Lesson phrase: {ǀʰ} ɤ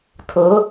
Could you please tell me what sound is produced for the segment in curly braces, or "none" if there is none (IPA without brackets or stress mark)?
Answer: tʰ